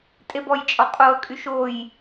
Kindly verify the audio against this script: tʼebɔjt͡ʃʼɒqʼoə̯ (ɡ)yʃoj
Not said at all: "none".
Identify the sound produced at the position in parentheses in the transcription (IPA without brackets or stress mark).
kʼ